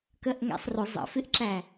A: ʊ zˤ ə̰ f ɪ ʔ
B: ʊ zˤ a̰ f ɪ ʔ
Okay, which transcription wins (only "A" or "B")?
A